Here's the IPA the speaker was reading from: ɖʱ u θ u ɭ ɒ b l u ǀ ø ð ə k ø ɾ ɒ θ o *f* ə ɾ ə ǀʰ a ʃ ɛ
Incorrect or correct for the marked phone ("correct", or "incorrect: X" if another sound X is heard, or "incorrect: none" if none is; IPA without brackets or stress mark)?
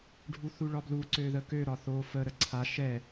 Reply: correct